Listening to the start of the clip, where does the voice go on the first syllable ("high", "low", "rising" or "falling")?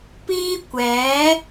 high